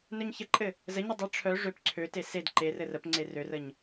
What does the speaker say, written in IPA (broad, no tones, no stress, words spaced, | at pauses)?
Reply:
nœɲçəǃʼɘ | zəɲɘ dˤɘ ʈ͡ʂʰœ ʐøp ǀʰøte sed ǃerɘ rəpŋ͡ǀe rørəɲ